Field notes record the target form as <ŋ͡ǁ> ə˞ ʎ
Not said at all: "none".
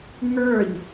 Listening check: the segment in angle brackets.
ŋ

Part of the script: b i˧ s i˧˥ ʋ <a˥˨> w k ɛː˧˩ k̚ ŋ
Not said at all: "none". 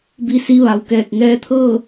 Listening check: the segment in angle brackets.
a˩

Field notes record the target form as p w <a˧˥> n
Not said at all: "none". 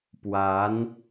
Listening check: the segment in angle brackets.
a˧˥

